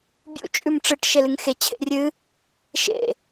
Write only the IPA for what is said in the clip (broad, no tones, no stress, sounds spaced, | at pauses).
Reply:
bʲ ṵ t͡ʃʼ ʉ m ʈ͡ʂ ɨ ʈ ʃ e l ɨ ŋ x e t͡ɕʰ ḛ rʲ ɨ | ʃ ḛ